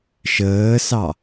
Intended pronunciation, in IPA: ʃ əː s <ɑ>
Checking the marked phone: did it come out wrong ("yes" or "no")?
no